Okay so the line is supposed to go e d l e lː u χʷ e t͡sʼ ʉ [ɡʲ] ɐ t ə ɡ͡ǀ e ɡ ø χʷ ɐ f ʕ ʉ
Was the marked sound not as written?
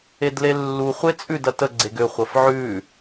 yes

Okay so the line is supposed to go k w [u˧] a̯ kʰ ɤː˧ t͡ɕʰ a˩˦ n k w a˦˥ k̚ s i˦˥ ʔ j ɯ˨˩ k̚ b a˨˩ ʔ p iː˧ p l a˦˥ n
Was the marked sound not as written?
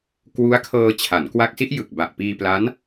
yes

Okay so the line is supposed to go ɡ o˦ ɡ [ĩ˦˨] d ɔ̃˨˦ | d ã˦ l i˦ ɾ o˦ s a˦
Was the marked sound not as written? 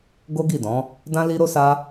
yes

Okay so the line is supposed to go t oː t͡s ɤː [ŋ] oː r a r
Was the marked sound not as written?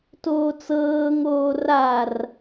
no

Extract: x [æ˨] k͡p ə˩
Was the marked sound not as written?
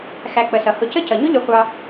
no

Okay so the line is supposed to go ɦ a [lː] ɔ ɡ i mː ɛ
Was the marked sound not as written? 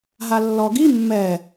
no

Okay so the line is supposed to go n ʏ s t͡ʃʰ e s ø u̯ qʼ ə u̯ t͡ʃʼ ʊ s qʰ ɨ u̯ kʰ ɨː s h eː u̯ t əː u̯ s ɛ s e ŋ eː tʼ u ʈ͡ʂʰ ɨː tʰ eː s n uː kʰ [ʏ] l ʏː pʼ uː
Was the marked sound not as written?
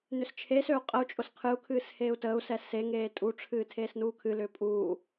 yes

